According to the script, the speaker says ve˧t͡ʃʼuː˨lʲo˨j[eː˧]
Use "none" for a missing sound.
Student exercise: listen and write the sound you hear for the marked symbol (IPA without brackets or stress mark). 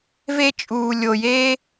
eː˧